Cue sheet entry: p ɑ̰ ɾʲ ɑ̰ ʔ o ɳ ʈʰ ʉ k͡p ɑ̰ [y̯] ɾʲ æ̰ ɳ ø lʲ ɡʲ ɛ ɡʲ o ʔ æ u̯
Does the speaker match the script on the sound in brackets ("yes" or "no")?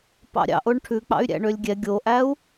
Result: yes